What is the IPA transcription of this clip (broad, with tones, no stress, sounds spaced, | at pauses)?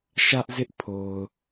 ʃ ä˦ ʔ z ɪ˦ ʔ pʰ o˨ ʊ̯